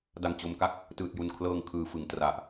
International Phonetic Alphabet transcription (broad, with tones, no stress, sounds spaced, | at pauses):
d a˨˩ ŋ t͡ɕ o˩˦ m k a˦˥ k̚ | t ɯː˨˩ t̚ j u˨˩ n kʰ l ɤː˧ ŋ kʰ ɯː˩˦ f ɯ˩˦ ŋ t r a˨˩ ʔ